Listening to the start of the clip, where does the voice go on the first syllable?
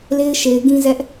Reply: high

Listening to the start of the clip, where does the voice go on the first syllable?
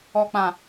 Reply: low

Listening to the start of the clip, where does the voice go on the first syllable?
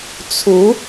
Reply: rising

